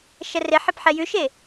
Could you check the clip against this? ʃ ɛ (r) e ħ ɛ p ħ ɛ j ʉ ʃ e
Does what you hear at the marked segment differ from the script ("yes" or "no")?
no